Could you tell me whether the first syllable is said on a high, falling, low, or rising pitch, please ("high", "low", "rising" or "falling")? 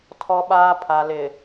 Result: low